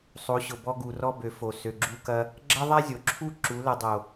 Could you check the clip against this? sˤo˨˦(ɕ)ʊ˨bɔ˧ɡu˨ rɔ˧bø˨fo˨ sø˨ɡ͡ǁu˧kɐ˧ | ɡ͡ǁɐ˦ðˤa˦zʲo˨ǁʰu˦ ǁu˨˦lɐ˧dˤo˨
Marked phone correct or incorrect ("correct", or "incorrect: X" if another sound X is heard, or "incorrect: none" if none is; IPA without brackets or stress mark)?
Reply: correct